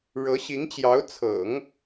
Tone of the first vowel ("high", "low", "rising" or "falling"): rising